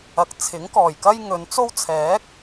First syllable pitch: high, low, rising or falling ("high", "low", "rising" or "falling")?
rising